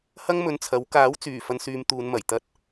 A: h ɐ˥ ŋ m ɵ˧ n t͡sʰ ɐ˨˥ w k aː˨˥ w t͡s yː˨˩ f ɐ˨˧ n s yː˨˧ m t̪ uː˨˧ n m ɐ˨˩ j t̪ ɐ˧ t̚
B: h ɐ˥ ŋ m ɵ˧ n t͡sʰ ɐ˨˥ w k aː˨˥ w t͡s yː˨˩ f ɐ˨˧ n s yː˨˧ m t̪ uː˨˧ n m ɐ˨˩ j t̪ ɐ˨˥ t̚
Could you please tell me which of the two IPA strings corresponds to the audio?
A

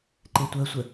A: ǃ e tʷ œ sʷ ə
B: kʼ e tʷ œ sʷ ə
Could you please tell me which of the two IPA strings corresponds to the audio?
A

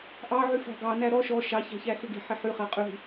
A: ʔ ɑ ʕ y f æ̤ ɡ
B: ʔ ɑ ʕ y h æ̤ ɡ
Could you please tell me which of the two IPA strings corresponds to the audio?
A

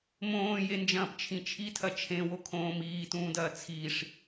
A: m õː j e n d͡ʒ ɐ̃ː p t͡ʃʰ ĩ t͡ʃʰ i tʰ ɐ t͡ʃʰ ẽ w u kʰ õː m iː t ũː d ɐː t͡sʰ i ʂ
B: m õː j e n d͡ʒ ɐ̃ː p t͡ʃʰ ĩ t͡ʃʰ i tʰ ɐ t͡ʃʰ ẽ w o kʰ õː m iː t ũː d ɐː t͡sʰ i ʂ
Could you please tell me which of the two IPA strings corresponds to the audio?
B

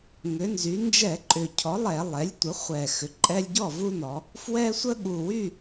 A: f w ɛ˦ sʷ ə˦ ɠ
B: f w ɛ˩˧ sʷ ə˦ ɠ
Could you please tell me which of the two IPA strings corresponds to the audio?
A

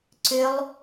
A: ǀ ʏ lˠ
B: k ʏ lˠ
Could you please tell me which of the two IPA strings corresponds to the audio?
A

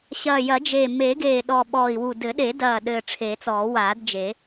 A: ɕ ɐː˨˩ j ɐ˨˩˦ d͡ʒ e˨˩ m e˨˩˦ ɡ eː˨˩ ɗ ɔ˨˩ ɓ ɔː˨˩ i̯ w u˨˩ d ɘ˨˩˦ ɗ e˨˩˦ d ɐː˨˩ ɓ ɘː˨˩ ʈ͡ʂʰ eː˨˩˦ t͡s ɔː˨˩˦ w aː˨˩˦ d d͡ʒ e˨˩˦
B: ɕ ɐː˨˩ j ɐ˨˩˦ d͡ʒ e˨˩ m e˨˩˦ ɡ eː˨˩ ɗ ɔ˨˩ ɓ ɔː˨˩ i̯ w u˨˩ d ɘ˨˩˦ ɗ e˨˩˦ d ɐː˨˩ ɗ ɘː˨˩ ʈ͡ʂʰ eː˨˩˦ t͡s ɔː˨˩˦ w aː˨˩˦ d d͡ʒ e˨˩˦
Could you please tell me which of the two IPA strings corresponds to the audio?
B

